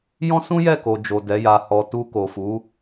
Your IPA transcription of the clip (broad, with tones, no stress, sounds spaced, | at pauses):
j ɔ̃˦ s ũ˦ j ɛ˦˨ k o˨ d͡ʒ o˨ d ɛ˨˦ j a˧ h ɔ˨ t u˧ k o˨ f u˨˦